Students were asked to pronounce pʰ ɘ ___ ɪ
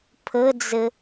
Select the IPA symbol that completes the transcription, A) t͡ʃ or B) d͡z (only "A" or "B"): B